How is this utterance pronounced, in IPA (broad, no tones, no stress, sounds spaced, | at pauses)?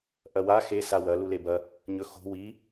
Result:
ʔ ɐ w a x e s a w ɐ l u l e b ɐ | ɲ ɵ x o̤ w i